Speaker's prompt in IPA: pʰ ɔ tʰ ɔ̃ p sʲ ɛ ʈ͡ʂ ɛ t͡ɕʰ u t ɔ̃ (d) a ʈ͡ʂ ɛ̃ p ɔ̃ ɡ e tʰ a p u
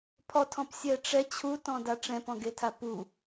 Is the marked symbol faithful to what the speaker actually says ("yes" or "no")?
yes